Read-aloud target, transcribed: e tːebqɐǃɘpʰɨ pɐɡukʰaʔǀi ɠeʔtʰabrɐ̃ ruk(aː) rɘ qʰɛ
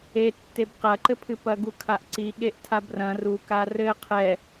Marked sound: incorrect: a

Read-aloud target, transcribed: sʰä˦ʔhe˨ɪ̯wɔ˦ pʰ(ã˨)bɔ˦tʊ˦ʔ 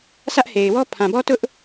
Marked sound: correct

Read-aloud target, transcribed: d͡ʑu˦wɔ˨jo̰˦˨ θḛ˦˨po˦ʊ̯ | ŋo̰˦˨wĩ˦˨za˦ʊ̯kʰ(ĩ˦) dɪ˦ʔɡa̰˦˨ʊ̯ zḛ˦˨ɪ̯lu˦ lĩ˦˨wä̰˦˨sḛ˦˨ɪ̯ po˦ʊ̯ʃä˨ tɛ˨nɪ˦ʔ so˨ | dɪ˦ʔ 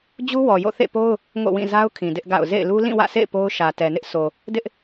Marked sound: incorrect: ĩ˨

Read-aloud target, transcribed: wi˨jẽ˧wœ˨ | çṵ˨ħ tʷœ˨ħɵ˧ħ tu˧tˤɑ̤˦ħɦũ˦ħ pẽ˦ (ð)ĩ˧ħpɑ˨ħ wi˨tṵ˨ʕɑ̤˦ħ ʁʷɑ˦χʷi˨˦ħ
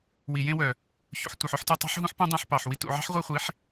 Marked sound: incorrect: dˤ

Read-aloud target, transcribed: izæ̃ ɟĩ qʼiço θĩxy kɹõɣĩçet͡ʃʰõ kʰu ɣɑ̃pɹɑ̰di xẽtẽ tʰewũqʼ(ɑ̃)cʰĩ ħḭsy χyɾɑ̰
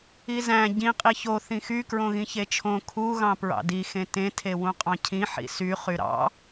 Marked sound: correct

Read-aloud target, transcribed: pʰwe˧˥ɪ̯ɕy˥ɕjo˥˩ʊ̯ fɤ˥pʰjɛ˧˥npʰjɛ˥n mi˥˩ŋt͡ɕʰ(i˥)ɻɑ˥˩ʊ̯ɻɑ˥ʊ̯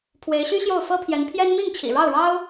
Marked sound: incorrect: ḭ˨˩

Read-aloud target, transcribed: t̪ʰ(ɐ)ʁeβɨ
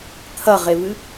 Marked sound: correct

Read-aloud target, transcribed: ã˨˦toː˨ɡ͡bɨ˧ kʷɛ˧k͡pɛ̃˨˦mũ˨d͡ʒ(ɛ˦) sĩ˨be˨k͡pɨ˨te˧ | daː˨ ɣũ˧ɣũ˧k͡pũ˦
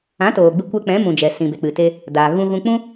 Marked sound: incorrect: ɛ˨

